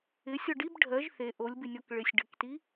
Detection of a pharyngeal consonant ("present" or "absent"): absent